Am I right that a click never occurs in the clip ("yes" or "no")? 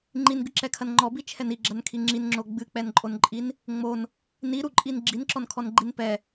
no